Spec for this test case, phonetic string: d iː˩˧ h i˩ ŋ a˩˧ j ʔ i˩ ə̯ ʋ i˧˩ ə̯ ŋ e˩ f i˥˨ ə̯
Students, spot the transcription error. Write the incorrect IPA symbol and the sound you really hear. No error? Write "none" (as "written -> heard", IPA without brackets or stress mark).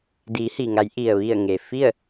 none